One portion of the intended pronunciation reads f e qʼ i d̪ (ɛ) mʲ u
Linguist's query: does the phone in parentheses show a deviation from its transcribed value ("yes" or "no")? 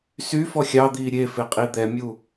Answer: no